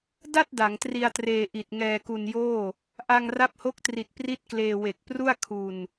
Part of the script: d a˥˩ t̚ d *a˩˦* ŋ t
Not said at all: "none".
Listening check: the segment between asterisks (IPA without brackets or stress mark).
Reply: a˩˦